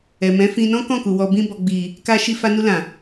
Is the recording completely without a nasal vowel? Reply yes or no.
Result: no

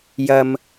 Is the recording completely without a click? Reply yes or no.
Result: yes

